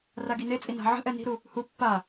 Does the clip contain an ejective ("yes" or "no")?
yes